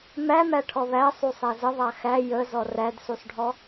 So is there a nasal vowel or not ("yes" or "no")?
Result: no